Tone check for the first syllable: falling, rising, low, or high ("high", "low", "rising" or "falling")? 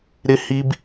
high